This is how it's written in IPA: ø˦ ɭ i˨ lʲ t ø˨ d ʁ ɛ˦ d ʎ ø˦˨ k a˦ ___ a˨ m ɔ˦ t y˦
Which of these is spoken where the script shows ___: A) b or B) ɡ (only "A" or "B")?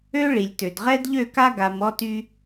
B